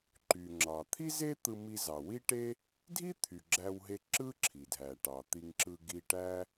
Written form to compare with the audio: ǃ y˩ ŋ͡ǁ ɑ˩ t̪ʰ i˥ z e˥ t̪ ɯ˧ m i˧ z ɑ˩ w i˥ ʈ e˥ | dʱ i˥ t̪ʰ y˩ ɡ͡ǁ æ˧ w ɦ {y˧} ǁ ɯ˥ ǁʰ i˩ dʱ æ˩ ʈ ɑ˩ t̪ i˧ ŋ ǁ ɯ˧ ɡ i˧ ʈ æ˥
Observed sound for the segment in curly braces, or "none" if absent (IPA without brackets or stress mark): e˧